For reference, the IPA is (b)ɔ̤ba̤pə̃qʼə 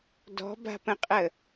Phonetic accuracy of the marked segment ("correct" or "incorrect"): incorrect